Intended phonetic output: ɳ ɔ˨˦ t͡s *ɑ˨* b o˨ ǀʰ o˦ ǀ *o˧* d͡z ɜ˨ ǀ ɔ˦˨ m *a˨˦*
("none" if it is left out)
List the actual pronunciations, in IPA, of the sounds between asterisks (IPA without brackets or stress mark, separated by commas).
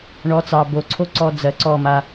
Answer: ɑ˨, ɔ˧, a˧